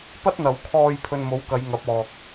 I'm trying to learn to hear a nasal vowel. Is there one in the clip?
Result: no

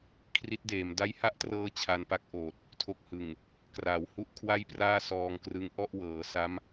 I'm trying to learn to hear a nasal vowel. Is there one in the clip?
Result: no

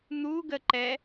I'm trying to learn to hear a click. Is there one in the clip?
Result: yes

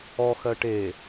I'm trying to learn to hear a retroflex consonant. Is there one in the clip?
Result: yes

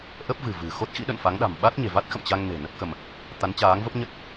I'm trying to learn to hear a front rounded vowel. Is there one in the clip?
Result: no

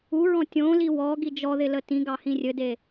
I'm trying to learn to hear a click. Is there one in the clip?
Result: no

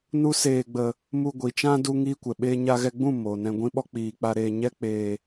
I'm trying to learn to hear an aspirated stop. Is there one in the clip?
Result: no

